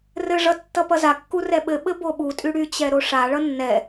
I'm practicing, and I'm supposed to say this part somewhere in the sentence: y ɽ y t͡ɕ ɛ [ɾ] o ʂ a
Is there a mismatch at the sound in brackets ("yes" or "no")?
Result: no